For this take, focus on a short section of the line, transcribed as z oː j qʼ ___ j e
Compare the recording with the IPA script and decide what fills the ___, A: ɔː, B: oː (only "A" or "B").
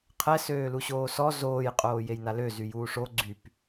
B